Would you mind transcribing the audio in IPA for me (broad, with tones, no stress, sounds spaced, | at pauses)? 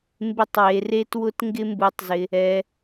m b ɪ˦ tˤ w e˧ r e˦ t w ʊ˦ t ŋ ɡ ɪ˦ m b u˧ tˤ z ɪ˧ | ɛ˧